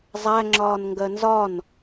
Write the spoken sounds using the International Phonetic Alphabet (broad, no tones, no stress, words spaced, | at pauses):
zˤæŋ͡ǁɒːnŋɡɜ nzɒn